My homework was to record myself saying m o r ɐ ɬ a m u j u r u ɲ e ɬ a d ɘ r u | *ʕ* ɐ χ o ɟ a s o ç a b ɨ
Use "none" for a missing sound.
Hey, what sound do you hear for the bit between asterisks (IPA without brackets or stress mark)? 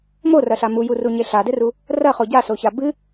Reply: r